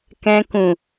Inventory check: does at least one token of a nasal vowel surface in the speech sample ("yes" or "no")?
yes